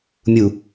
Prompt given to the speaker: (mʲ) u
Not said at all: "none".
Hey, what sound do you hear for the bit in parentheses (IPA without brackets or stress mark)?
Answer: mʲ